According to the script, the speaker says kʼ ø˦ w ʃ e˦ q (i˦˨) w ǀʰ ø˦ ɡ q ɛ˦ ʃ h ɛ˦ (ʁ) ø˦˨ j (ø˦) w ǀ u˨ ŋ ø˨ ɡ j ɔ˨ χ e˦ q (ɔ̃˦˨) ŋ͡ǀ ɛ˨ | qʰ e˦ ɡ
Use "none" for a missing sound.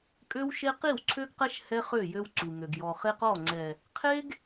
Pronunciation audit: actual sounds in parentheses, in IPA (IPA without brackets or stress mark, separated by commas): i˦˨, χ, ø˦, ɔ˦˨